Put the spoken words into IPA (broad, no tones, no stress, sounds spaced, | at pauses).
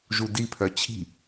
ʒ u d i pʰ œ t͡ɕʰ i̤